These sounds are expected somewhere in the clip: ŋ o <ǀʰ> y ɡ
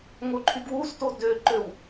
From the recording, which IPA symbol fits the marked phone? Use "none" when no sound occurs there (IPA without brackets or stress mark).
ǃʰ